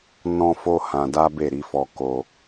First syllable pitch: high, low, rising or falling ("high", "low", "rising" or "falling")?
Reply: high